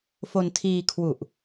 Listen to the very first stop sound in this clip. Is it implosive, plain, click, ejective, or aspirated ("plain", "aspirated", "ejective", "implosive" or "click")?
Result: aspirated